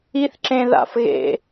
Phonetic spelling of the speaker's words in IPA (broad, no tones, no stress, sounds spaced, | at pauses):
i θ ǁ ẽ ð a̰ f ɣ ḛ